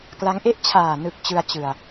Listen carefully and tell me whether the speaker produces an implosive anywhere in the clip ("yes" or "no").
no